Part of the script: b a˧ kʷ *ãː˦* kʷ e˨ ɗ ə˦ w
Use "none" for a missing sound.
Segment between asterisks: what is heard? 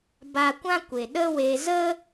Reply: ã˦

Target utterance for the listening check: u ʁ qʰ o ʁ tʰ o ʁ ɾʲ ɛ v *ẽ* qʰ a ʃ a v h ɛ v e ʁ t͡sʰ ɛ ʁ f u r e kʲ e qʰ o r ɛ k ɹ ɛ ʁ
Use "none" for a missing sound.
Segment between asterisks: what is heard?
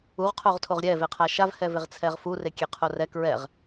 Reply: e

